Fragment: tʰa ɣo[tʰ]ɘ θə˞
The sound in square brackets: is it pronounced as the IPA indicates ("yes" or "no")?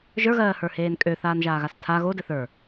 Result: no